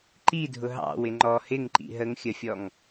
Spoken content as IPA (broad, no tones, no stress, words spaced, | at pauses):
ǃidʱʊ ɦɑ̰ wɪŋ͡ǃɔ hɪŋ ǃḭɦəŋxʲəfʲɔŋ